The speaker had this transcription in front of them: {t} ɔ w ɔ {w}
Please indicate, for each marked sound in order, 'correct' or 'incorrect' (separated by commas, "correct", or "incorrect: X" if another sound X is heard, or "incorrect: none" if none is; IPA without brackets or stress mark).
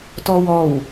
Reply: correct, correct